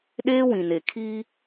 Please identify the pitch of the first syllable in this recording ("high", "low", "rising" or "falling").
high